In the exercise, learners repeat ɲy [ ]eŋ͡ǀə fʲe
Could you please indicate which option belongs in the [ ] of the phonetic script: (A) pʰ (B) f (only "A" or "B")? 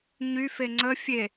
B